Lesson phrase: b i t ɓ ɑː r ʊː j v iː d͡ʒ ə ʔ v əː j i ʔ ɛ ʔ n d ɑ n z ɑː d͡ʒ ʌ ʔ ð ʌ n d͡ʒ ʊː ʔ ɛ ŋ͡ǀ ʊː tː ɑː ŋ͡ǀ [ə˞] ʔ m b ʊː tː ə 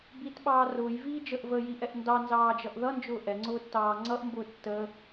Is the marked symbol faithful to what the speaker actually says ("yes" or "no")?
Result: no